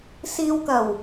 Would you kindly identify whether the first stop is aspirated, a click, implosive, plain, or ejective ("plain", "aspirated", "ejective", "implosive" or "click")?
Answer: plain